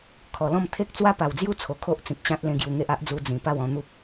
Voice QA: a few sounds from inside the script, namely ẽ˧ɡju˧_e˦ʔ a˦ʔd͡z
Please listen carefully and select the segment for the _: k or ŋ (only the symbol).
ŋ